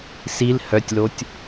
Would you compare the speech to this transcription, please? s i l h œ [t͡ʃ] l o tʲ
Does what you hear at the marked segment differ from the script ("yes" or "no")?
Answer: yes